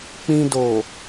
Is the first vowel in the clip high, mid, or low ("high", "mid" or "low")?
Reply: high